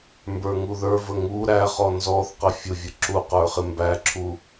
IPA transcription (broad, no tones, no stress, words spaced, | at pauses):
mbə˞ŋuðə˞və ŋu ɾæχɔ nzɔθqə fʲʊvʲə ǁu qə˞χɪmbæǁʰu